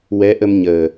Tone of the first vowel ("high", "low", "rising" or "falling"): rising